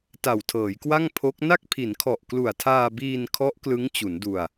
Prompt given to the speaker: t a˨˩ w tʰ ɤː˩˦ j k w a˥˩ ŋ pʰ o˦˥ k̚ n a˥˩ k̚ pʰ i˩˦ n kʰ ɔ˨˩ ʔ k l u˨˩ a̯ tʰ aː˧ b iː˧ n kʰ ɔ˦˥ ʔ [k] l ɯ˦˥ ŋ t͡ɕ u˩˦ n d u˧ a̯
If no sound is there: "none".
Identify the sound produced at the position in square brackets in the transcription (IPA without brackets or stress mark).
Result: k